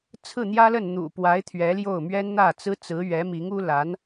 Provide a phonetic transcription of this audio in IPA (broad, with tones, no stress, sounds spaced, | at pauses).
t͡sʰ ɹ̩˥˩ n̪ j ä˥ l ə˥˩ n n̪ ṵ˨˩ p w a˧˥ ɪ̯ t̪ʰ ɥ ɛ˧˥ l j o˥˩ ʊ̯ m ɥ ɛ˥ n n̪ ä˥˩ t͡s ɹ̩˥ t͡s ɹ̩˧˥ ɥ ɛ˧˥ m i˧˥ ŋ u˥ l a˧˥ n